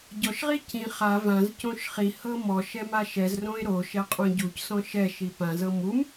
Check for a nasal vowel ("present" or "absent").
present